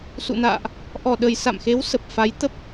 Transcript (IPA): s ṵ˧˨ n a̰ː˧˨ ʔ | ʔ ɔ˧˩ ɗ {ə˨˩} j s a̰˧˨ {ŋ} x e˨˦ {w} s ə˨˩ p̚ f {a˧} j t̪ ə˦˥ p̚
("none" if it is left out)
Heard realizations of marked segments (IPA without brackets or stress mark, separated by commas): ə˨˩, m, w, a˨˦